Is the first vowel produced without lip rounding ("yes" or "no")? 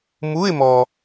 no